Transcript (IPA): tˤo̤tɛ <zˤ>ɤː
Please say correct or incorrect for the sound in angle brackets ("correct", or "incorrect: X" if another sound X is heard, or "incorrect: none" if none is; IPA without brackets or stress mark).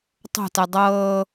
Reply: incorrect: dˤ